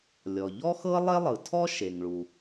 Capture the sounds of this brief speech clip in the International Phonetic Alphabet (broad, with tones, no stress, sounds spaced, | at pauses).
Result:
lʲ ɔ˩ ʎ ɔ˥ x ɤ˥ lˠ e˥ lˠ ɯ˩ tʰ ɔ˥ ʃ e˩ ŋ ɭ u˩